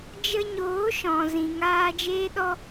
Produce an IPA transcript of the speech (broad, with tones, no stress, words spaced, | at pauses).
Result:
d͡ʒə˧ɲoː˨˦ʃɔ̃˨ zĩ˨ŋaː˧ d͡ʒeː˦ɗɔ˦